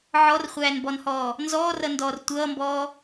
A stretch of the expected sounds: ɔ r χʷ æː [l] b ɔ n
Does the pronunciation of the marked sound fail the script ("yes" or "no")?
yes